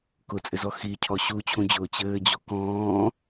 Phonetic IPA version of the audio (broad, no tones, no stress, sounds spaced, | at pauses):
k ʊ t͡sʼ ɘ z ɔ x i cʰ ɔ ɕ u t͡ɕʰ ũ d͡ʑ ʊː t͡ɕ ɘː d͡ʑ ɔ k ɔ̃ː